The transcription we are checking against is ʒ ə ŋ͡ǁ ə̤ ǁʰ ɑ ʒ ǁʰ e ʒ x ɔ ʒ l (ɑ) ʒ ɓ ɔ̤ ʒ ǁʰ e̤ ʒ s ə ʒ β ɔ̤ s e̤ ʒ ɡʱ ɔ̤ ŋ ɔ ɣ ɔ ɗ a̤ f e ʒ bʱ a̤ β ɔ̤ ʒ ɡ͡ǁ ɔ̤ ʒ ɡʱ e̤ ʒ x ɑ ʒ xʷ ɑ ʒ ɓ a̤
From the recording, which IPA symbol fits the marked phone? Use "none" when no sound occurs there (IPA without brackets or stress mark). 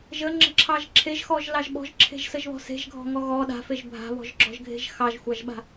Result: ɑ